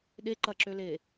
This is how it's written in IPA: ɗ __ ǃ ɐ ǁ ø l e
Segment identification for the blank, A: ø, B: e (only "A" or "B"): B